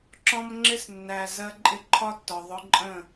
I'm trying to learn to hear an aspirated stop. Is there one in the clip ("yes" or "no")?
yes